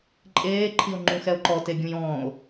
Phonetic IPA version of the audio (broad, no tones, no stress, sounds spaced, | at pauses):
ǃʼ eː ǃʰ i o̯ ŋ͡ǃ ũ x ɛ o̯ ǃ ɔ t e ɡʲ ũ j ɔ̃ː o̯